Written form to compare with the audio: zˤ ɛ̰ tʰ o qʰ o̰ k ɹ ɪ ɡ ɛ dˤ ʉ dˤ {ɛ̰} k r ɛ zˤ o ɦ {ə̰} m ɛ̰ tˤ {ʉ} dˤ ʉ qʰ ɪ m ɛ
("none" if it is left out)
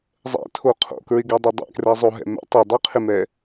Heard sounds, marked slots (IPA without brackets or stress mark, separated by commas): ɛ̰, ɛ̰, ʉ